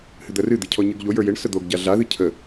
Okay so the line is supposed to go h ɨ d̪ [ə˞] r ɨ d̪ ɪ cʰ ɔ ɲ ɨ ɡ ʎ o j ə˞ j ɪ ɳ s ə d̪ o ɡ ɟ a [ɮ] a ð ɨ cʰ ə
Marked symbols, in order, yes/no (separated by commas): no, yes